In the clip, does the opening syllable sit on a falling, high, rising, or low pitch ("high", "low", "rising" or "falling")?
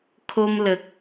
high